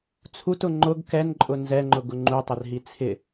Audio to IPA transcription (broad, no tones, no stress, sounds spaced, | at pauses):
t͡sʰ u t ʊ ŋ͡ǃ ʊ ɡ k ɛ n ǃʼ ʊ n z ɛ ŋ͡ǃ ʊ ɡ ʊ ŋ͡ǃ u tˤ ɪ r ɦ i t͡sʰ ɪ